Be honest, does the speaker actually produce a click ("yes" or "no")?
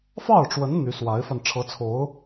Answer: no